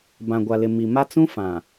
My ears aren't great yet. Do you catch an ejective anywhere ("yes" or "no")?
no